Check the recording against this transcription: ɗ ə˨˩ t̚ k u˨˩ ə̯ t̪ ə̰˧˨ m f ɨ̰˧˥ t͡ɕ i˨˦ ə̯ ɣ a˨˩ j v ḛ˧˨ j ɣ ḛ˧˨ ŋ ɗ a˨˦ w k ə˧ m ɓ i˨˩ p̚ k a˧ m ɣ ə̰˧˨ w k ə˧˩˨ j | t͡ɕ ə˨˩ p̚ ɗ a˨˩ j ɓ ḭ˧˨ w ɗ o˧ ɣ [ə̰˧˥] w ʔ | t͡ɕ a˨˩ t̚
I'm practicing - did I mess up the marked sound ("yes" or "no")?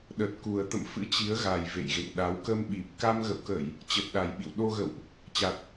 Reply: yes